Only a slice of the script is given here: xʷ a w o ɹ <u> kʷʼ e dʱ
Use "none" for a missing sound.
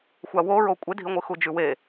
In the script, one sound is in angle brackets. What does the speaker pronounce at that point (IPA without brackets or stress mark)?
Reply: o